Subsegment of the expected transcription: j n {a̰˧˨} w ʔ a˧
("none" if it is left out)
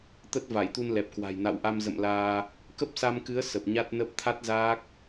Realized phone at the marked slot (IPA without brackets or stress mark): a̰˧˨